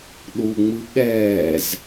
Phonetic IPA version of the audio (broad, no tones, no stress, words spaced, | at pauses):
ɗuŋ͡mɯ ɠɛːz